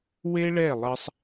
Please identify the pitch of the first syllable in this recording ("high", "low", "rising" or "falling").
high